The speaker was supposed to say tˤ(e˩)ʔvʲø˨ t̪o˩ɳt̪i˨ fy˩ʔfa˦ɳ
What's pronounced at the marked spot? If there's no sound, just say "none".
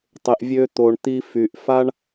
e˩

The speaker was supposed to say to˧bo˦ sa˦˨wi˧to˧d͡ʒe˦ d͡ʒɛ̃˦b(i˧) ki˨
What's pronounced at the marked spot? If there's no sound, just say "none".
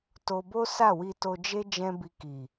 i˧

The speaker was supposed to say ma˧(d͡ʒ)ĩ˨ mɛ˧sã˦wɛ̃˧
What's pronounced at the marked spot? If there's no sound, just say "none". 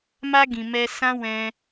ɡ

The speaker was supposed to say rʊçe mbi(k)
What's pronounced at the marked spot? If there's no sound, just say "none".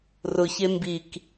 k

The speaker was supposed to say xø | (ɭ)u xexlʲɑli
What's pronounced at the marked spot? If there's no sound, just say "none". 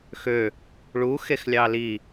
ɭ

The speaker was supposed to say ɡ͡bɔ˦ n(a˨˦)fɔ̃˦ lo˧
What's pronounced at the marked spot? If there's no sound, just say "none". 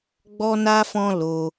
a˦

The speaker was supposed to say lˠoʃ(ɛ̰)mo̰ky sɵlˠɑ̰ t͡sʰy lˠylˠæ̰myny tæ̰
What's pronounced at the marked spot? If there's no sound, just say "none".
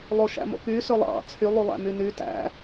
æ̰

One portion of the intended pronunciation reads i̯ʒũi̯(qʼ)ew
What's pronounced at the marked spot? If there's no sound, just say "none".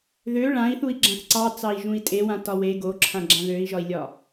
tʼ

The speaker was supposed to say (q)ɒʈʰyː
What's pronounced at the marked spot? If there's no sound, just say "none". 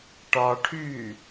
ʈ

